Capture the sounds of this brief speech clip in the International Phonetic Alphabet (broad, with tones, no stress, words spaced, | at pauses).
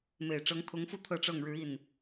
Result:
me˨˩ɪ̯ʈ͡ʂɤ˧˥ŋt̪ʰʊ˧˥ŋfu˥ t̪ʰɤ˥˧ʈ͡ʂɤ˥˩ŋ ɻɻ̩˧˥i˥˩n